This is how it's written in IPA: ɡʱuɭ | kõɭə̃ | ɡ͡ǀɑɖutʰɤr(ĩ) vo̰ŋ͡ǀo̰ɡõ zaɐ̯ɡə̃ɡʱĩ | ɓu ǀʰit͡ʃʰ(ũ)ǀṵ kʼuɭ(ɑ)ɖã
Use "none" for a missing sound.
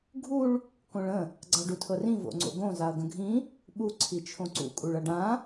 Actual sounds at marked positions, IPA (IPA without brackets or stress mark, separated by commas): ĩ, õ, ʌ